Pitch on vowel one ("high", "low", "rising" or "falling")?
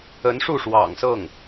rising